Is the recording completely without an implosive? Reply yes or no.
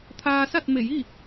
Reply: yes